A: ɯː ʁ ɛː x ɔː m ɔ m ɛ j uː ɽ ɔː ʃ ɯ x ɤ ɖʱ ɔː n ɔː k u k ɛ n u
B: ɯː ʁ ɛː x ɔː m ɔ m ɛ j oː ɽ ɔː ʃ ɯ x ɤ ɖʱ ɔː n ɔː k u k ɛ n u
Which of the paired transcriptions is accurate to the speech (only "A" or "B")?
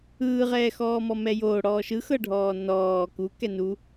B